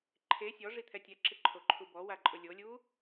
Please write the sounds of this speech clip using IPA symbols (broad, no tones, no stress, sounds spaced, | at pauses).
ǃʰ e sʲ ɔ ʐ i t̪ʰ ɛ tʲ ɛ ǁ ɪ ǃʰ o ǃʰ u b ɔ w a ǃʼ ʊ lʲ o lʲ u